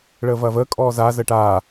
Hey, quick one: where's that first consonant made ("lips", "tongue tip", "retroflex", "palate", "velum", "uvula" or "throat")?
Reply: retroflex